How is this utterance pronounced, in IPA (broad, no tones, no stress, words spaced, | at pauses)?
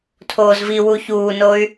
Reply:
tʰoːzviwu çuːnoy̯